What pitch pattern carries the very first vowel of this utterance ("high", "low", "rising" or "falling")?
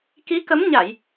rising